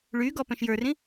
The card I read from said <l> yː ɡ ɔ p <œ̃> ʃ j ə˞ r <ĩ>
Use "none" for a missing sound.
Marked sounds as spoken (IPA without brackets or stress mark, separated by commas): ɭ, œ̃, ĩ